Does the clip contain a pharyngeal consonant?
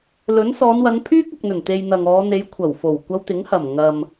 no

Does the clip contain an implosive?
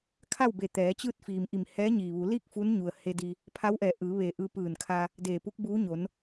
no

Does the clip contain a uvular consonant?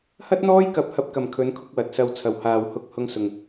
no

